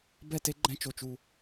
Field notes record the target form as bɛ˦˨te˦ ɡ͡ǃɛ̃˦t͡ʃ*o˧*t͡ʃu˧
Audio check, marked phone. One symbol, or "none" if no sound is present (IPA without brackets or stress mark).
o˧